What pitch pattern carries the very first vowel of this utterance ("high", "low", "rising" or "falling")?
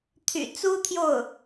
low